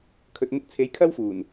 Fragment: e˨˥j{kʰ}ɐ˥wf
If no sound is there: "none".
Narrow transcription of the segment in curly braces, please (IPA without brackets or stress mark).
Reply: kʰ